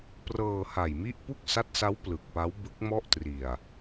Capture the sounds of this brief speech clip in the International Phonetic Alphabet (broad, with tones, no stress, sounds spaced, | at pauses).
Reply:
p r ɤː˧ h a˨˩ j m i˥˩ ʔ p u˥˩ k̚ s a˦˥ t̚ s a˦˥ w p l ɯ˨˩ k̚ p a˦˥ w b ɯ˦˥ k̚ m ɔ˥˩ ʔ t r i˨˩ a̯